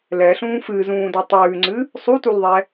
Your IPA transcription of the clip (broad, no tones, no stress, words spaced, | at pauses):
lɛɬũː fɨzũːdʉ tˤʉːŋ͡ǀɨ | sˤutulðˤɛ